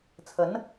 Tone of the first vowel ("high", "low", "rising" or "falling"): rising